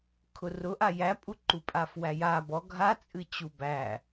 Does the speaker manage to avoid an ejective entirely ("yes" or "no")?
no